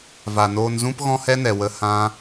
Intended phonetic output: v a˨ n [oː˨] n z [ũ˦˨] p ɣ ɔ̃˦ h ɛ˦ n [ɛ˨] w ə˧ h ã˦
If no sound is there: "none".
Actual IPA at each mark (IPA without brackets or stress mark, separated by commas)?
oː˧, ũ˦, ɛ˨